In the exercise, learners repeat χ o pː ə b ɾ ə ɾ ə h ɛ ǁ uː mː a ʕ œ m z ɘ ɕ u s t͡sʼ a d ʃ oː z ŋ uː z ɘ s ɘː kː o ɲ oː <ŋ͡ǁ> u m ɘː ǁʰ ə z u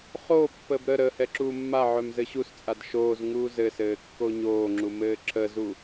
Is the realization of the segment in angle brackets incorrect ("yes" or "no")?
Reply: no